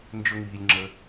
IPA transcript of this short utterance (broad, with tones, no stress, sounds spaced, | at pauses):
n d͡ʒ ɵ˥ ŋ iː˧ lʲ ŋ͡ǁ ə˧